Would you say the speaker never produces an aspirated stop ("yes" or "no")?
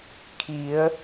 no